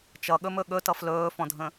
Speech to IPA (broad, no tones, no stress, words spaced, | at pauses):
t͡ʃʌɠɵmɵ ɠɵtʌf lɵːfɔ̃dʱə̃